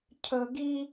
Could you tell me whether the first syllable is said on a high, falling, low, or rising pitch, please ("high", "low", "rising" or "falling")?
high